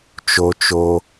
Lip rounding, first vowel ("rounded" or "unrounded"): rounded